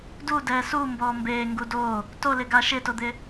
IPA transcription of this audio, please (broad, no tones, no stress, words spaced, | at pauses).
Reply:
dudɛː sumbɔː mbeːŋɡu do | tolɪɡa ʃɪtod̪ɪ